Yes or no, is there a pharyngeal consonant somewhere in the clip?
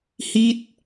no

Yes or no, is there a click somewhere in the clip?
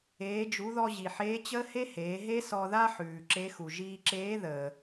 yes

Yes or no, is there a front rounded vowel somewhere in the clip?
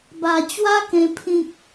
no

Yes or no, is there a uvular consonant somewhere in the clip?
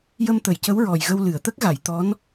no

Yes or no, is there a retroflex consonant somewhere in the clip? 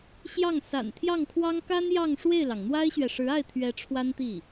yes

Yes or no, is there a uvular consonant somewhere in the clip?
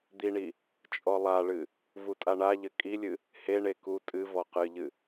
yes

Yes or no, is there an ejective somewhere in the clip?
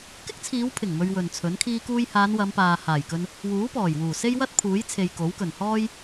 no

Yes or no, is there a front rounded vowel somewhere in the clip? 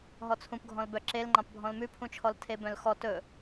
yes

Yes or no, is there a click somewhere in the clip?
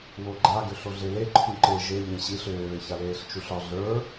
yes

